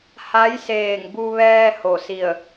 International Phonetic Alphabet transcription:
ha˧˥jseː˧˩ŋbu˧ ʋɛː˧ ho˧˩si˧˩ə̯

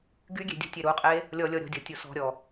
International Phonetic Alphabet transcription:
ɡyɡʲe̤ dʲṳtʲeɾuqʼe | lʲɔ lʲɔɾʲɔ̤dʲɔ tʲusɔ̤ɾʲɔ

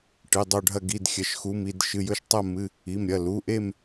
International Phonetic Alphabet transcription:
ʈɨ˩˧˩dˤo˦˨ɖʱɐ˦˨ ɡi˩˧˩d xʲɐ˩˧˩ʃxu˩˧˩m i˦˨d ʃɨ˩˧˩jɵ˦˨ʃtˤɐ˦˨ mɨ˩˧˩ | i˩˧˩mɾʲɐ˩˧˩ lu˩˧˩ʔe˦˨m

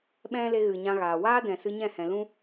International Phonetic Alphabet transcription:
ɓɛ̃˦le˧ ɣɨ˨ɲã˧ɣaː˨ waː˦dɛ̃˨sɨ˧ ɲɛ̃˦˨hɛ̃˨lũ˦

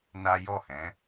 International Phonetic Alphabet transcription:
na˦ jɔ˦˨hɛ̃˨˦

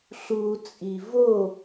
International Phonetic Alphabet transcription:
ɬut͡sʼi vo

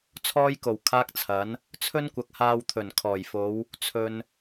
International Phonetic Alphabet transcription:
t͡sʰɔː˥jko˨˩w kʰaː˥k̚t͡sʰɐ˨˥n | t͡sʰɵ˥nkʷɐ˨k̚haː˧w t̪ʰɵ˨˩nkʰɔː˨˩jfo˨˧w | t͡sʰɵ˨n

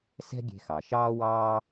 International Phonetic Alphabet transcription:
sɛ̤˥ɡʲe̤˧xɑ˩ ʃɑː˥wɑː˥

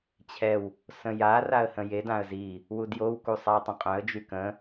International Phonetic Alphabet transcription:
t͡ɕʰɛw | sə̃ja raə̯hə̃jed ãə̯zi | wudjow kusˤaə̯tˤə̃qʼœ̃ə̯ d͡ʒykə̃

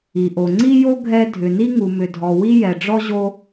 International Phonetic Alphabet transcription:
i˩ʔo˩ŋ͡ǀi˥jo˥ ɡʱɛ˥ dʱʏ˩ni˥ ŋu˩mʏ˩dʱɔ˩ wi˥jɛ˩ɖ͡ʐɔ˥ ʑo˥

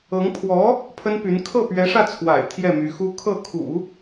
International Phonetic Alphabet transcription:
ɤ˧˥ŋ pʰwɔ˧˥ | pʰə˥npy˧˥n kʰɤ˥˩pɥɛ˧˥ʂä˥˩t͡sʰwa̰˨˩ɪ̯ t̪ʰjɛ˥˩my˧˥xu˥ kʰɤ˥˩kʰṵ˨˩˦

